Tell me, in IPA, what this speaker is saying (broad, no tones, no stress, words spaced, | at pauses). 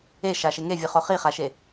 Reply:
eʃaʃe ŋevʲɯχo χiχaʃe